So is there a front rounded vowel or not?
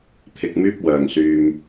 yes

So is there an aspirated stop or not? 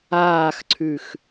yes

